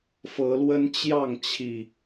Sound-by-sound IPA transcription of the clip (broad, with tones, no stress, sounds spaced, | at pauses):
f ɤ˨˦ l w ə˦ n t͡ɕ j ɑ˥˨ ŋ t͡ɕʰ i˨˩